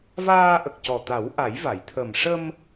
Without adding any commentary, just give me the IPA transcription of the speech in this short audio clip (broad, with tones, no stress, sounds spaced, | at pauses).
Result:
v aː˧ ʔ ə˨˩ k̚ c ɔ˨˩ t̪ a˨˩˦ w ʔ a˨˩˦ j v a˨˩˨ j t̪ʰ ə˨˩ m ʂ ə˧ m